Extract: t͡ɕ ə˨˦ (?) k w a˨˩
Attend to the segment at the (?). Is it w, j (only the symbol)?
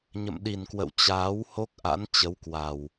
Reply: w